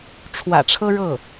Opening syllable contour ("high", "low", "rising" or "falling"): low